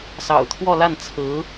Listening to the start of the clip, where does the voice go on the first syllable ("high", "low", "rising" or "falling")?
low